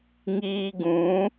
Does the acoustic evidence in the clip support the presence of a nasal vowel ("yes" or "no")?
yes